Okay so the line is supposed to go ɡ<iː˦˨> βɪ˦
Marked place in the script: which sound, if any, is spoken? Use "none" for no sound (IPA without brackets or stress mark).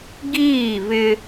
iː˦˨